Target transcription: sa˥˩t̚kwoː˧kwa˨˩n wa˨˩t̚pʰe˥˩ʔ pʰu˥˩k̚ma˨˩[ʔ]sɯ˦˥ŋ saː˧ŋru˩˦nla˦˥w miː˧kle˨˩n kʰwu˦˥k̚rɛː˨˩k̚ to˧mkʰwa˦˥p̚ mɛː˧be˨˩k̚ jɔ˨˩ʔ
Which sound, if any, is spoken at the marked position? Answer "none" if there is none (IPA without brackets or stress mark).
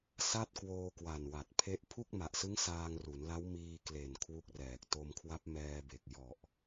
ʔ